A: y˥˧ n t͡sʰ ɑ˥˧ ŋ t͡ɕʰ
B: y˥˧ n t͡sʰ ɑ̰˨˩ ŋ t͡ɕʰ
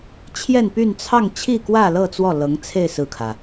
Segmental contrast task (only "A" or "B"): A